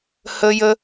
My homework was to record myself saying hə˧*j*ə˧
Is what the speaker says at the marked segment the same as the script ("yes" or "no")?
yes